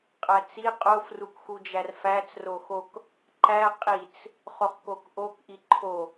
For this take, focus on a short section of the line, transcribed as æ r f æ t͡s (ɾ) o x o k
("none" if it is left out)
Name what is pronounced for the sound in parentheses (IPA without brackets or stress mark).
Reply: r